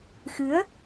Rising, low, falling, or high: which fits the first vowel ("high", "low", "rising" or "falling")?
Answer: rising